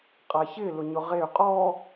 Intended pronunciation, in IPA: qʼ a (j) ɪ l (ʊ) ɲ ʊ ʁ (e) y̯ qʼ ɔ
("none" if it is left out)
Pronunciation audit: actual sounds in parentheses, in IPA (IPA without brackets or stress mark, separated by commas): ç, ʊ, e